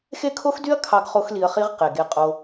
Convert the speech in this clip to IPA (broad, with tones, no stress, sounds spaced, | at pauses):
x e˦ kʰ o˦ x d y˦ ɐ̯ kʰ ɑ˦ ɡ χ o˦ x l i˧ ɐ̯ χ i˦ ʁ q e˨ ɡ e˧ qʼ o˧